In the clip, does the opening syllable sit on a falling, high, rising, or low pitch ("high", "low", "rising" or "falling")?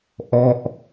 falling